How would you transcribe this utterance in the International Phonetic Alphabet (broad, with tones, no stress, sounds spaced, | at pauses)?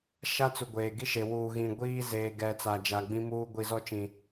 ʃ a˦ t͡s u˨ ɡʷ eː˨ ɡ i˦ ʃ e˨ w uː˨ ɣ ĩ˨ ɡʷ iː˦ z eː˨ ɡ ɛ˨ t͡s a˨ d͡ʒ a˨ ɡ͡b ĩ˦ m uː˦ ɡʷ i˨ z ɔ˦ t͡ʃ ĩ˨